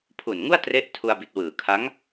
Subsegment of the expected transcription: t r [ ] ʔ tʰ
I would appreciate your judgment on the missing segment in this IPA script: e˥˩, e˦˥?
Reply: e˦˥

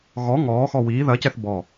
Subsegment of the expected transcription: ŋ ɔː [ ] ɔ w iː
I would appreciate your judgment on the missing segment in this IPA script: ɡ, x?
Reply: x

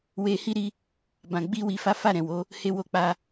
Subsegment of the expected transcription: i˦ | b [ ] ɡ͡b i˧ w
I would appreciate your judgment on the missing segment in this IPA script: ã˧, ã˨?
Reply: ã˨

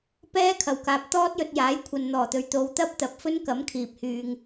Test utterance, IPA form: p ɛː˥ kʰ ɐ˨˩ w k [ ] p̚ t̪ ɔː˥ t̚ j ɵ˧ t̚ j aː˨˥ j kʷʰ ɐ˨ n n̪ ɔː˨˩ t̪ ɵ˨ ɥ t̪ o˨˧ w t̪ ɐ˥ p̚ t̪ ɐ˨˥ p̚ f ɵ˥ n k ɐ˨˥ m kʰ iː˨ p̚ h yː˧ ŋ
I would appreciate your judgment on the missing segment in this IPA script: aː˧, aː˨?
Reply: aː˨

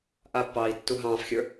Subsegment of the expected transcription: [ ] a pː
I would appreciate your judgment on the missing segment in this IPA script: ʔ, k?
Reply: ʔ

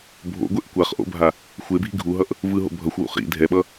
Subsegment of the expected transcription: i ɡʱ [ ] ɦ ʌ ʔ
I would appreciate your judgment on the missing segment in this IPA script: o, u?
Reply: u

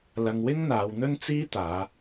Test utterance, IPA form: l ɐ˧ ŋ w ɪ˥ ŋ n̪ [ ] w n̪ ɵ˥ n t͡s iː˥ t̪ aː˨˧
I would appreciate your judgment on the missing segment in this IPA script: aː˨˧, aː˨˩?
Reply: aː˨˧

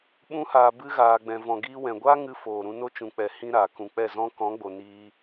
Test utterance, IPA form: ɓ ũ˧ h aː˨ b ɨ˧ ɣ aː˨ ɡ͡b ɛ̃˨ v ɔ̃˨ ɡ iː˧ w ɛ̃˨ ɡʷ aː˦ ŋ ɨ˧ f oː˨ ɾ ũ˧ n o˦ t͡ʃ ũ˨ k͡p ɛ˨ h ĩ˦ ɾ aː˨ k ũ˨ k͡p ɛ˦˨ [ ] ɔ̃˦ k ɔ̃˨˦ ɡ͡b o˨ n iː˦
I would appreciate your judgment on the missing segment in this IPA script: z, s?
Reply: z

